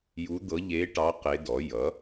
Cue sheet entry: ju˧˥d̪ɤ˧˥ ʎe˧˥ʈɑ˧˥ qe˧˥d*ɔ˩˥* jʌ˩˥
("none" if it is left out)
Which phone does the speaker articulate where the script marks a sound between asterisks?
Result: ɔ˩˥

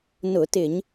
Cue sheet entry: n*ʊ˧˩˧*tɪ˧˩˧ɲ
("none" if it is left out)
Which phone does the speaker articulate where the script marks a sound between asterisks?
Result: ʊ˧˩˧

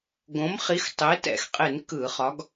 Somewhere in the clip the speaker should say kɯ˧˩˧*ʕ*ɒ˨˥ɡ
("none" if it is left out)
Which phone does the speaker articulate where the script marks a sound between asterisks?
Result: χ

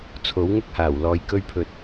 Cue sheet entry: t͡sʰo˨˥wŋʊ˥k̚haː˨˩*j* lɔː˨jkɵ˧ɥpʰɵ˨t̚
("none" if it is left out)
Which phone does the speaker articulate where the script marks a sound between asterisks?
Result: w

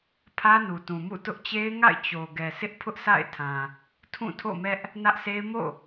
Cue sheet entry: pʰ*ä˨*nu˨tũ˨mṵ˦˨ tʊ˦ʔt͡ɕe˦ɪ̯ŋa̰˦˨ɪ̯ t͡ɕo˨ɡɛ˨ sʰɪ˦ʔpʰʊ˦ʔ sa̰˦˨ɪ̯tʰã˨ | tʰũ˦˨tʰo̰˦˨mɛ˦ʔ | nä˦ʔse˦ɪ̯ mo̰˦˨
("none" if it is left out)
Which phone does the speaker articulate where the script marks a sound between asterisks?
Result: ä˦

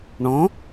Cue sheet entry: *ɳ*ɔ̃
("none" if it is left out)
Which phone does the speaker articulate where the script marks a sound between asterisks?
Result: ɳ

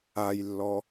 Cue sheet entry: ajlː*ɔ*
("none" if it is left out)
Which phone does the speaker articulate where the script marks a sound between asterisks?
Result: ɔ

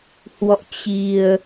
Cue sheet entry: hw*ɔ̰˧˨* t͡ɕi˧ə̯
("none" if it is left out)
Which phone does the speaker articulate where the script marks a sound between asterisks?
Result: ɔ̰˧˨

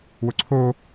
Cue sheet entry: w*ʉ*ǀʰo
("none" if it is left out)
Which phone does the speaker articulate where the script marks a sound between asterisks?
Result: ʊ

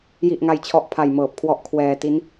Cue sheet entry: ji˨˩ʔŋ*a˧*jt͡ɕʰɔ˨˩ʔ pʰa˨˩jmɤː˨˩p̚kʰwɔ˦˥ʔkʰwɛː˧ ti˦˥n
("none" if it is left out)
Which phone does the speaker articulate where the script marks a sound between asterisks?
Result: a˨˩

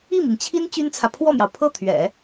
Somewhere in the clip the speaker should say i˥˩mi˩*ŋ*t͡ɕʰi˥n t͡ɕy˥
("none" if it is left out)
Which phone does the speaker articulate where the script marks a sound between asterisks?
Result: ŋ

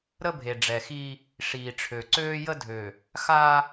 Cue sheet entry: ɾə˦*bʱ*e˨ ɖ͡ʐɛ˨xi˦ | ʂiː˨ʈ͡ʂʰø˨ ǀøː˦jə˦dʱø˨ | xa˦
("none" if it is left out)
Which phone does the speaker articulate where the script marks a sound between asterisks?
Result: bʱ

